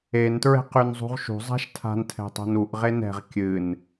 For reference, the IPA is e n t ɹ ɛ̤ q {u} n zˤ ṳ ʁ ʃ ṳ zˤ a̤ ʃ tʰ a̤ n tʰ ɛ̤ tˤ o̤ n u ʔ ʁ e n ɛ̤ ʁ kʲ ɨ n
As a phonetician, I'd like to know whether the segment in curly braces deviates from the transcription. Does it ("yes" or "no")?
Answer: yes